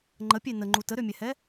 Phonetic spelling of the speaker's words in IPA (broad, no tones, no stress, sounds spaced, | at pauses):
ŋ͡ǃ ə pʲ e n ə ŋ͡ǃ u t ə ɾ ø mʲ ɛ h ɛ